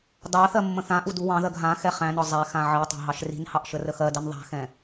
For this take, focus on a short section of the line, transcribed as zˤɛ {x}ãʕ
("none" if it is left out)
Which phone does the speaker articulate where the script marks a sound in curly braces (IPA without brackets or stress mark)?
x